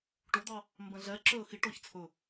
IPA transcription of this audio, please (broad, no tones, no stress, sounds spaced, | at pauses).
ʈ o d̪ ɑ | m b ɛ̃ ɮ ɛ ǁ ø ə̯ x i ʈ ɔ ç t͡sʰ ɵ